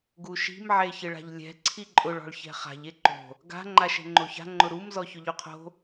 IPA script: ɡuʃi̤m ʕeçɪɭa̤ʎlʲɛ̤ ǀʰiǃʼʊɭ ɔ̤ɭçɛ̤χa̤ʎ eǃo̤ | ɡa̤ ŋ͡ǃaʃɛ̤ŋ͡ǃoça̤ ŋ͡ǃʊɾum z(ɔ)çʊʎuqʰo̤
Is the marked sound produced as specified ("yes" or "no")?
yes